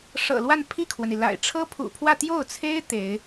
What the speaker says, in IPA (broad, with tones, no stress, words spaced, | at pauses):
ʂɤ̰˨˩lwa˥˧n pʰi˥˩kʰwə˩ni˩la̰˨˩ɪ̯ ʈ͡ʂʰɤ˥pʰṵ˨˩pʰwä˥˧ t̪jo˥˩ʊ̯t͡sʰe˥ɪ̯ t̪e˧˥ɪ̯